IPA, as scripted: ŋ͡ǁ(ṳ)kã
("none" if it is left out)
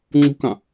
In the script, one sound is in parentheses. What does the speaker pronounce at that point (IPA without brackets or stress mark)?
ṳ